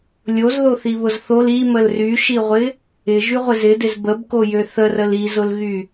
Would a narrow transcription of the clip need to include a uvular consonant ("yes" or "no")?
yes